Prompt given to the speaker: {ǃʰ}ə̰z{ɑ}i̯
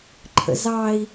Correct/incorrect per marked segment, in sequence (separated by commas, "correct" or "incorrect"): correct, correct